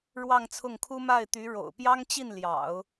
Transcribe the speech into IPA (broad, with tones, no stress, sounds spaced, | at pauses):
ɻ w ɑ˥˧ ŋ t͡sʰ ʊ˥˩ ŋ kʰ u˥ m a˥˩ ɪ̯ t̪ y˧˥ ɻ o̰˨˩ ʊ̯ p j ɑ˥ ŋ t͡ɕ i˥˩ n l j ɑ̰˨˩˦ ʊ̯